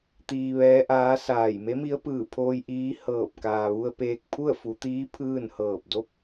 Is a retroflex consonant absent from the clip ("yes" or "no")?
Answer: yes